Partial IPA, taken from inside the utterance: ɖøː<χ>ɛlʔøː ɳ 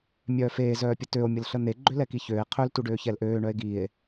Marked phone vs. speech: incorrect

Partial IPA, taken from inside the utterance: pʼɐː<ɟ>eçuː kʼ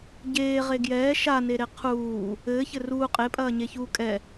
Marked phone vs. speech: incorrect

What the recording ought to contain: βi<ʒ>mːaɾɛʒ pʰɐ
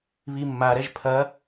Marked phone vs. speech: incorrect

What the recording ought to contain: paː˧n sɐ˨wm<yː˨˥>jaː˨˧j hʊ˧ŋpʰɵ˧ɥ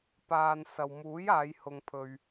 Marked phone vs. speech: incorrect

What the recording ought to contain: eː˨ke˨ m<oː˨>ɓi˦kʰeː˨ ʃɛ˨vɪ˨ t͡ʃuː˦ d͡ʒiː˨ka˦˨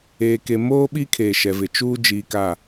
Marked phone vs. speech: incorrect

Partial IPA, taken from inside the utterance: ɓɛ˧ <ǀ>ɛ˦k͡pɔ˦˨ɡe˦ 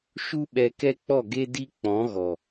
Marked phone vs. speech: incorrect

